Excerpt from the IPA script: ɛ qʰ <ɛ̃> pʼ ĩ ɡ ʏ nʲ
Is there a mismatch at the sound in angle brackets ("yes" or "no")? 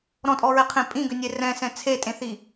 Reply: yes